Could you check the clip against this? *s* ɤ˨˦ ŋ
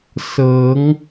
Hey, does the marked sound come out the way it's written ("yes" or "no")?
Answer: yes